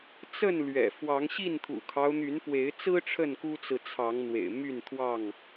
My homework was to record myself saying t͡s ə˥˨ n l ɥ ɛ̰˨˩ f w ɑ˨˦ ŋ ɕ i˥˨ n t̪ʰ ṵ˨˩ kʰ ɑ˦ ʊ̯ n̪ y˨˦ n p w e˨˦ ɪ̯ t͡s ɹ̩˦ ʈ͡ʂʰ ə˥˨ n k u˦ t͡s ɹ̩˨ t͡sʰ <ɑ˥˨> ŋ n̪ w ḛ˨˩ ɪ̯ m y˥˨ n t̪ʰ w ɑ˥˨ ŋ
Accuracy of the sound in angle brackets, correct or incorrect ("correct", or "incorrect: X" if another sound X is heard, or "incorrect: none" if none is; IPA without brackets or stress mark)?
incorrect: ɑ˨˦